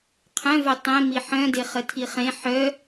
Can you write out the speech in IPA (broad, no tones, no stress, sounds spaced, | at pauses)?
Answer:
qʰ œ̃ v œ tˤ ẽ m i ħ œ̃ d e χ ə tʰ i χ ẽ ħ œ